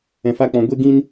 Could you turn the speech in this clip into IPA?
ɛ̃˨ f a˧ k͡p ɔ̃˨ ɡʷ e˦ ɡ ĩ˦ n

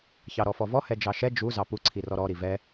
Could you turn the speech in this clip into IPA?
ç ɑ ɾ ɔ f ɔ v ɔ h ɛ d͡ʒ ɑ ʃ ɛ d͡ʒ u z ɑ p u ǀʰ i r ɔ ɾ ɔ ɾ i v ɛ

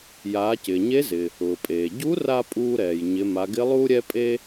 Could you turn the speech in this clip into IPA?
j aː˩˧ c ɪː˩ ɲ e˧˥ z ɪ˩ | ʊː˩ pʼ eː˩ ɟ u˧˥ r a˧ pʼ uː˧ ɾ ɛː˩ j ɲ ɪ˩˧ m a˩˧ ɡ ɪ˧˥ lˠ uː˥ ɾʲ ɛ˥ pʼ e˥

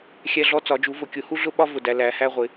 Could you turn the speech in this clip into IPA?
xʲ æ˦ ɮ ɔ˦ t͡s ɒ˩˧ d͡ʒ u˩˧ v ʊ˩˧ kʲ ʊ˩˧ h u˦ ɮ ʊ˦ ɓ ɒ˦ v ʊ˩˧ d æ˩˧ l æ˩˧ h æ˦ ʁʷ ɪ˩˧

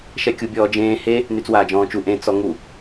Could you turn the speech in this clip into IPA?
ʃ ɛ kʲ u bʲ ɔː d͡ʒ ẽː h e | n y t͡s w aː d͡ʒ ɔ̃ː t͡ʃ u ʔ ẽ t͡s ɔ ŋ u

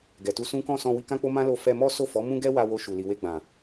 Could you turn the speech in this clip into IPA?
ɡ ɛ˨ t u˧ s ũ˦ k ɔ̃˦˨ s ɔ̃˧ w i˧ k ã˦ k͡p o˦ m ã˦ l o˧ f ɛ˧ m ɔ˦ s o˦˨ f ɔ˨˦ m ũ˦ ɡ ɛ˦ w a˧ w o˧ ʃ u˨ l i˨ w e˧ ɡ͡b ã˨

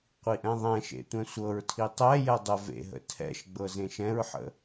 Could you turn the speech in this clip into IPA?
qʷ i ʔ ɛ̃ ðˤ ɛ̃ ʃ ḛ tʷ ɛ̃ sʷ ɤ ɹ tʰ i tˤ ɛ j ɛ dˤ ə v ḛ ɦ ə̰ tʰ ɛ̰ ʃ ɡ͡b ɤ z ẽ ʃ ɛ̃ ɹ ħ ə̰

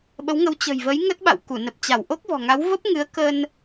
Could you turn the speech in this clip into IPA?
ɓ ə˨˦ w ŋ ə˨˦ w t͡ɕ ə̤˨˩ j v ə˨˦ j ŋ ə˦˥ t̚ ɓ a̰˧˨ w k u˧˩ n ə˨˩ p̚ t͡ɕ a˧˩ w ʔ o˦˥ k̚ v ɔ̤˨˩ ŋ a˨˦ w v ə˦˥ p̚ ŋ ɨ˨˦ ə̯ k ə˧ n

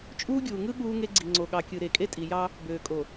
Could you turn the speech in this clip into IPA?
t͡ʃʼ uː˦ ɡʲ uː˨ ŋ ɯ˦ ɠ uː˦ ŋ e˦ ɡ͡ǀ i˨ ŋ͡ǀ o˨ ɠ ɑ˨ kʲ ɯ˨ ɾ e˨ kʼ e˦ tʼ i˨ j ɑ˦ | b øː˨ kʼ o˨

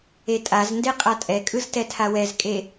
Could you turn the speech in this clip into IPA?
e tʼ a z n d e qʼ a tʼ ɛ kʼ ɯ z t ɛ tʰ a w ɛ z kʼ e

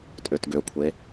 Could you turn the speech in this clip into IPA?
tʼ ø t ɡ ø kʷʰ e

